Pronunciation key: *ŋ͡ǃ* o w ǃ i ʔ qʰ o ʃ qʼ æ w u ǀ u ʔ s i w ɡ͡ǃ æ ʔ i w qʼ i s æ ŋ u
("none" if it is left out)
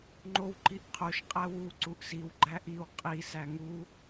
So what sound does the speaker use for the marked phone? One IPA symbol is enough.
ŋ͡ǃ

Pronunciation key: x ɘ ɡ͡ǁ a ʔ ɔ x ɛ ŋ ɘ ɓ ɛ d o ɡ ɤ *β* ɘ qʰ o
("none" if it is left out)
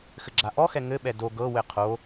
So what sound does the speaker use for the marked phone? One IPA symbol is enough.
w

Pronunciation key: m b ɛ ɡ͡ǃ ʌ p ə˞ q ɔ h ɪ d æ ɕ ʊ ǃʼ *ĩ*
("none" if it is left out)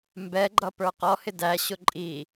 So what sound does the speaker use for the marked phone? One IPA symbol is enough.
i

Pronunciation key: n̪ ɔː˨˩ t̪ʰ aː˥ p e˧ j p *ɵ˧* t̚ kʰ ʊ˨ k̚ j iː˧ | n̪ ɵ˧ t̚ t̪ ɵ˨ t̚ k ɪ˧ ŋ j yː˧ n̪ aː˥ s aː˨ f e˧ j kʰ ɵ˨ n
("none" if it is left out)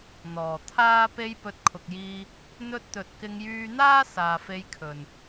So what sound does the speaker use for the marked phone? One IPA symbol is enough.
ɵ˨˥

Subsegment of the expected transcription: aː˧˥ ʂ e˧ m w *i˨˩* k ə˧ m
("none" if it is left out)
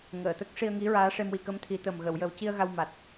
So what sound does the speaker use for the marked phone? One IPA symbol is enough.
i˨˩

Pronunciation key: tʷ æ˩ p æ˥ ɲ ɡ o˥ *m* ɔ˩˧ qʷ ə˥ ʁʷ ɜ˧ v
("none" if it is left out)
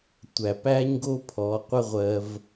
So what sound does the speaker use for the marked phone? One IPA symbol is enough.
pʰ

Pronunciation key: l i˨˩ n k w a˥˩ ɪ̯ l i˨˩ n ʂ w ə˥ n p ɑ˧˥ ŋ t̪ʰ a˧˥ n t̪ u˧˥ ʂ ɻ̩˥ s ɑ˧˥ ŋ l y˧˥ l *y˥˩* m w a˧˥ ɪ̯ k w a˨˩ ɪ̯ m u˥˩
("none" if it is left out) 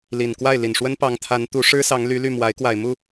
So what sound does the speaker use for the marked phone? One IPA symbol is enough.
y˥˩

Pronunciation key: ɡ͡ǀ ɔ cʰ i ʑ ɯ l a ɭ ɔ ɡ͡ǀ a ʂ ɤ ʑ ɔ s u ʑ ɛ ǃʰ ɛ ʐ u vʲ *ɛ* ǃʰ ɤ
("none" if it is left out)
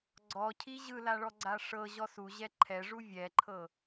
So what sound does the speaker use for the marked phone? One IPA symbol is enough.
ɛ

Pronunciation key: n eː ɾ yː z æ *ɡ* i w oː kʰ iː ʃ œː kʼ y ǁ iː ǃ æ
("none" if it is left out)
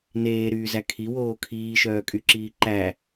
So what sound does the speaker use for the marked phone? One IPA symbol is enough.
kʰ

